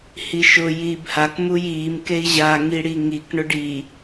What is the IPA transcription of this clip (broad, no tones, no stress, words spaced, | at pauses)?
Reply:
hiʃʊ jiːbhak mujiːm kei̯ʑa ŋiɽiŋik ɳʊɖi